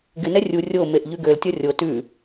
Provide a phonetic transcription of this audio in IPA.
ɡ ɪ n ɛ rʲ u rʲ o m e ʔ ʎ ʉ ɡ ø l tʲ ʌ rʲ o t ʉ

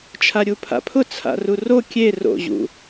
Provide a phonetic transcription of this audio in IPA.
t͡ʃʰ a ɾʲ u pʰ a̰ pʰ ʊ t͡sʰ a̰ r u r o kʲ e r o̰ ʑ ṵ

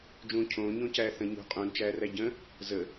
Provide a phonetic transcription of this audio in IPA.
d͡ʒ ũː cʰ õː ɲ õ c æː θ ə̃ ɲ ṳ qʼ ũ n t͡ʃ æː r æ ɟ ə̃ | z ə

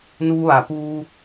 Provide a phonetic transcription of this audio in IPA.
n uː˧ ʋ a˩ p uː˧

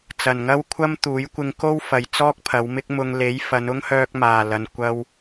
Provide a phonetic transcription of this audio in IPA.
t͡s ɐ˨˩ n ŋ ɐ˥ w kʷʰ ɐ˥ m t̪ uː˨˥ j kʷ ɪ˧ ŋ k o˥ w f ɐ˨ j t͡s ɔː˥ k̚ pʰ ɐ˨˧ w m ɪ˧ k̚ m ʊ˨ ŋ l e˨˥ j f ɐ˨˧ n ʊ˥ ŋ h œː˧ k̚ m aː˨˩ l ɐ˨ n kʷ ɐ˧ w

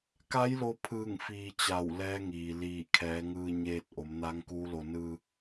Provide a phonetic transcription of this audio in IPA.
k a˧˥ j l o˧ pʰ ɯː˧˩ ŋ f iː˧ t͡ɕ a˧˩ w l ɛː˧˥ ŋ iː˩ l iː˧˩ kʰ ɛː˩˧ ŋ ɯː˧ ɲ eː˧ t̚ ʔ o˩˧ m n aː˧˥ ŋ k uː˧˥ l o˧ n ɯː˧

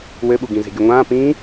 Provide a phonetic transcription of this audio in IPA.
w ɘ ɓ u ɡ ĩ z e̤ ɡʲ o ŋʷ ãː p ĩː

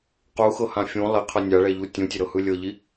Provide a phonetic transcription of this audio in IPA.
q u x ɤ h ã fʲ ũ lˠ i qʰ ɤ nʲ a ɭ ɛ ʎ u tʲ ũ tʲ e ɾ ɤ h ɯ lʲ ɤ ʎ i

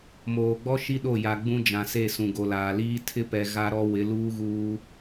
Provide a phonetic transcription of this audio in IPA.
m oː˨ ɡ͡b ɔ˦ ʃ i˦ ɗ o˦˨ j a˨ ɡ͡b ũ˦ d͡ʒ ã˨ s e˦˨ s ũ˨ ɡ o˨ l aː˨ l iː˦ tʰ ɪ˦ p ɛ˨ ɣ a˦ ɾ ɔ˦ w ɪ˨˦ l uː˦ ɣ uː˦

